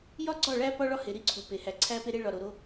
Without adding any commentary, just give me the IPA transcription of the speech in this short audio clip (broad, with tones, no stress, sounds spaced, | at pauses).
j ɒ˦ ɡ͡ǀ ɒ˦˨ ɭ æ˦ p ɒ˦ ɭ ɒ˦ h e˨ ɾ i˦ ǀʰ u˨ p e˨ h æ˨ ǀʰ æ˦ p e˦ ɾ e˦ ɭ ɒ˨ ɾ o˨ ɾ o˦